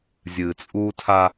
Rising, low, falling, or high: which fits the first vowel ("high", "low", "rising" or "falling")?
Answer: low